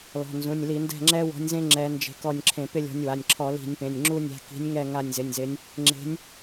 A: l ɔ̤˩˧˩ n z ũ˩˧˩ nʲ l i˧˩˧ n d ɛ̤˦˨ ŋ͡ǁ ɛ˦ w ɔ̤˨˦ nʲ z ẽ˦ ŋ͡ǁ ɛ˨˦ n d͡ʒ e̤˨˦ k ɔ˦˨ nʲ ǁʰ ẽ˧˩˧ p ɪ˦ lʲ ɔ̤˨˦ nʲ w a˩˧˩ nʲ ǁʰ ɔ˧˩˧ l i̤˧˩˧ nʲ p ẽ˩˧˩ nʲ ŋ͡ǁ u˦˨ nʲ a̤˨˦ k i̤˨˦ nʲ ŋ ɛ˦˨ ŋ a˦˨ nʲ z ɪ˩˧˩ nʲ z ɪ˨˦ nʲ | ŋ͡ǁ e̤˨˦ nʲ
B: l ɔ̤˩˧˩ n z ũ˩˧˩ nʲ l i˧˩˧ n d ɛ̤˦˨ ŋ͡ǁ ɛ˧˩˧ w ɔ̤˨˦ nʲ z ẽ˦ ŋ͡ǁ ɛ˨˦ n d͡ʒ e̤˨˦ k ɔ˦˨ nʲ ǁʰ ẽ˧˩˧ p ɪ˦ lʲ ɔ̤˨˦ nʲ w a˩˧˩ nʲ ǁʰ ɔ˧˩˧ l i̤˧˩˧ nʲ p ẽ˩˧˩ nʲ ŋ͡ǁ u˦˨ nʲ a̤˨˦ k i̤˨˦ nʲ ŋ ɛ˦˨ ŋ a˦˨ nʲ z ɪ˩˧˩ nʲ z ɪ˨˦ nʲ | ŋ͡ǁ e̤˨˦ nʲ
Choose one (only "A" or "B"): A